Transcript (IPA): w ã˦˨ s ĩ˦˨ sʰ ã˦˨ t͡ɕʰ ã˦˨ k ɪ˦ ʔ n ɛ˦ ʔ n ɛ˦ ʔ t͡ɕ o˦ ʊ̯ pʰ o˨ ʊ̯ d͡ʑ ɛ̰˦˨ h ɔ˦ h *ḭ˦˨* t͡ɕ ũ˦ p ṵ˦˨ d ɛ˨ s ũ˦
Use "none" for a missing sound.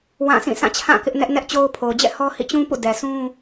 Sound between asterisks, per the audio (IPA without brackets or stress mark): ḭ˦˨